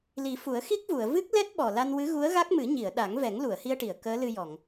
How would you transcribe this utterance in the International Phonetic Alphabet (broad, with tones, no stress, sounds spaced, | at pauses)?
l i˨˩˦ f u˨˩˦ ə̯ x i˦˥ k̚ v u˨˩˨ ə̯ v ɨ˦˥ k̚ l ɛ˦˥ t̚ ɓ ɔ˨˩ l a˧ n w ɨ˧˥ ɣ u˧˥ ə̯ ɣ a˦˥ k̚ m ɨ˨˩˦ ɲ i˨˩˨ ə̯ ɗ a˨˩˦ ŋ v ɛ˨˩˦ ŋ l u˨˩˨ ə̯ h i˧ ə̯ ʈ i˨˩˨ ə̯ k əː˧˥ l ɨ˧ j ɔ˨˩˨ ŋ